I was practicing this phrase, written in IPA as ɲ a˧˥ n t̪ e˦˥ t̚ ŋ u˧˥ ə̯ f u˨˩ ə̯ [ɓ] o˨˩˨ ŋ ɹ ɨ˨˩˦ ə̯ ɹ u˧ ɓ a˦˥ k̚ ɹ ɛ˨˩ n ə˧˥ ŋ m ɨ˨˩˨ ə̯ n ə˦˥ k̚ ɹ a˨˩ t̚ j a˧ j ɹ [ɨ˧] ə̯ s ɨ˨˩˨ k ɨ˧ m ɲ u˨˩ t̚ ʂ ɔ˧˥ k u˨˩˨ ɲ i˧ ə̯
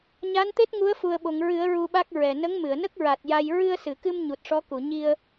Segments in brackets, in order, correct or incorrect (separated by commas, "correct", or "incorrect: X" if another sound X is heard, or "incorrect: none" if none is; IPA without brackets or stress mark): correct, correct